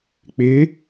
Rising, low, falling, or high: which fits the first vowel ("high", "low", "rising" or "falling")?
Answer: rising